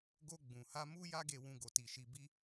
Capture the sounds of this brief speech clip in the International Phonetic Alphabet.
ɡ o˧ ɡ͡b ũ˨ h a˧ m u˦ j a˦ ɡ e˧ w ũ˧ ɡ o˧ t i˧ ʃ i˧ b i˦

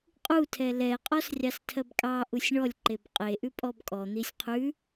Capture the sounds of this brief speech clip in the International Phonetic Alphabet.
qʼ u tʰ ɛ l ɛ qʼ ɔ s rʲ ɑ s tʰ ɜ b kʼ ɑ ʔ u sʲ ɳ ɔ lʲ ǃ e b qʼ e ʔ ʉ pʼ ɔ b kʼ ɔ n̪ i sʲ qʰ ʉ

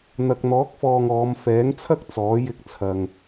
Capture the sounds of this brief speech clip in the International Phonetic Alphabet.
n̪ ɐ˨ k̚ n̪ ɔː˨˥ k̚ f ɔː˨ ŋ ɔː˨˧ m f ɛː˨˥ ŋ t͡sʰ ɐ˥ k̚ t͡s ɔː˨˥ j ɪ˧ k̚ t͡sʰ ɐ˨ ŋ

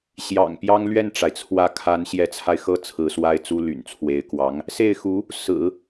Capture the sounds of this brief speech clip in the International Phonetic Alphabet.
ɕ j ɑ̰˨˩ ŋ p j ɑ˥ ŋ l ɥ ɛ˥˩ n ʈ͡ʂ a˩ ɪ̯ t͡sʰ w ä˧˥ kʰ a˧˥ n ɕ j ɛ˧˥ t͡sʰ a˧ ɪ̯ x ɤ˥˩ t͡sʰ ɹ̩˧˥ s w a˥ ɪ̯ t͡s u˥ l y̰˨˩ n t͡sʰ w e˧˥ ɪ̯ k w ɑ˧˥ ŋ | s e˥˩ ɪ̯ x u˧˥ | s ɹ̩˨˩˦

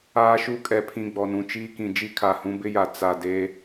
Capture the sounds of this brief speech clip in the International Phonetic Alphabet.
aː˦ ʃ u˦ kʼ ɛ˨ pʰ ĩ˨ ɡ͡b ɔ˨ n ũ˨ t͡ʃ iː˦ k ĩ˨ d͡ʒ i˦ kʰ a˨ h ũ˦ b ɪ˦ j a˨ t͡s a˨ d e˦

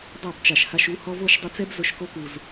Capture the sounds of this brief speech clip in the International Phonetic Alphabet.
dˤ a˦˨ b t͡ʃ a˨ ʃ h a˧ ʃ u˨˦ h ɔ˧ v o˦˨ ʃ dˤ ɪ˧ t͡s ɛ˦ b z ʊ˧ ʃ k o˦ k u˨ z

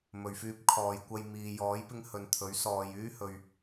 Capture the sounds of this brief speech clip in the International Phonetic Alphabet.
m ɵ˨ ɥ f yː˧ p̚ kʰ ɔː˨ j kʷ ɐ˧ j m iː˨ j ɔː˨˥ j p ɪ˧ ŋ h ɵ˨ n t̪ʰ ɵ˨˥ ɥ s ɔː˨ j yː˥ h ɵ˨ ɥ

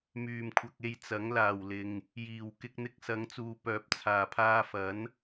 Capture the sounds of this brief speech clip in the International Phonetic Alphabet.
m yː˨˩ m kʷʰ ɐ˨ k̚ e˧ j t͡s ɐ˨˥ ŋ l aː˨˩ w l ɪ˨ ŋ | j iː˨˩ w k ɪ˧ k̚ n̪ ɪ˧ k̚ s ɐ˨˧ ŋ t͡s uː˨ p œː˨ p̚ t͡sʰ aː˨˩ pʰ aː˧ f ɐ˨˥ n

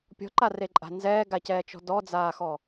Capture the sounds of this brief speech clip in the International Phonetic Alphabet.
pʲ ɔ̤ ǃ a r e ǃʼ a̤ n z ɛː ɡ a c ɛː t͡ʃ ɔ̤ d ɔ d͡z aː x ɔ

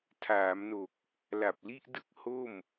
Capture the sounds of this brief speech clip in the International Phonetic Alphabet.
tʰ aː˩˦ m n o˨˩ k̚ | l a˨˩ p̚ l i˥˩ ʔ d ɯ˥˩ k̚ h o˥˩ m

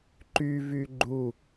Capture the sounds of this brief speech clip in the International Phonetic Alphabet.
ǃ y v y ɡ͡ǃ u

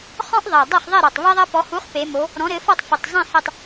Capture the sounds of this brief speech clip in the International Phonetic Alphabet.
χ ɔ̃˥ ʔ ðˤ ɛ˨˩ dˤ ɐ˥˨ χ ðˤ ɛ˥˨ ɾ ɔ˨˩ tˤ β ɛ˥ ðˤ ɐ˥ p ɔ˨˥ h u˨˥ χ p e˩˧ m o˩˧ | ɾ ɔ̃˨˥ ɾ ɘ˨˥ f ɔ˥˨ tˤ f ɘ˨˩ tˤ zˤ ẽ˥˨ h ɛ˥˨ tˤ

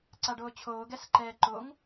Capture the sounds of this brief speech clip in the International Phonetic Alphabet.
ǀ a ɖ oː t͡ɕʰ oː ɡ ɛ s ǃ ɛː ǃ o ŋ

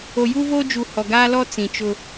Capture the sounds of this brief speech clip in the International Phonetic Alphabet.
o˨ j u˦ v oː˦ d͡ʒ u˨ h ɔ˨ ɡ aː˦ l ɔ˦ t͡s ĩ˨ t͡ʃ ʊ˦

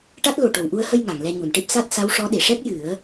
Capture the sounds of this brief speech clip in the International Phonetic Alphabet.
ʈ a˦˥ t̚ l o˨˩ ʈ o˨˩ w ʔ u˧ ə̯ h ə˧ j ŋ a˨˩˨ ŋ l ɛ˧ ɲ u˨˩˨ n ʈ e˦˥ p̚ s a˦˥ t̚ s a˧˥ w ʂ ɔ˧˥ ɗ e˨˩˨ ʂ ɛ˦˥ k̚ j ɨ˨˩˦ ə̯

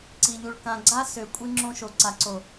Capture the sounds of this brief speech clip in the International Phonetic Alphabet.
ǀ i˨ ʎ u˨ ɭ k ã˨ ɡ͡ǀ a˦ s ø˨ kʷʼ i˦ ŋ͡ǁ õ˦ ʃ o˨ ǀ a˨ ǀ o˨

